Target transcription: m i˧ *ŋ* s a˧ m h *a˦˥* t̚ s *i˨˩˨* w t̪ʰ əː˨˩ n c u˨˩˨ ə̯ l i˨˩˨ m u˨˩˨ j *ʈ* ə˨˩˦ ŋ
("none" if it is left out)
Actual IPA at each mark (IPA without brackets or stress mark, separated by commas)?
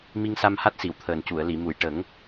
ŋ, a˦˥, i˨˩˨, ʈ